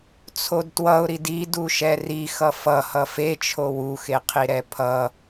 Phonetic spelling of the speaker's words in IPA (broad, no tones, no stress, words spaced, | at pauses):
t͡sʰodtwʌʊ̯ɾid iduʃɛ rixʌ fʌhʌ fet͡ʃʰo wuxeqʰi ɾɛpʰʌ